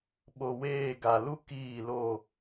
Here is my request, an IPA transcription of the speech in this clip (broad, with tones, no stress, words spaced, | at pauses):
ɓo˨weː˦˨ɡa˨ lu˦ kiː˦˨lo˦˨